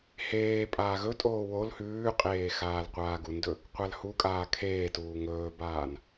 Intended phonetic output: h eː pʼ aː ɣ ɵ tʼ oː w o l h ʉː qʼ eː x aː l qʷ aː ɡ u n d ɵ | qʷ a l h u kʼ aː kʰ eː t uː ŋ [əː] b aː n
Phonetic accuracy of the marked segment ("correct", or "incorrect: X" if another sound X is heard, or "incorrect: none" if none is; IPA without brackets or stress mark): incorrect: ɵː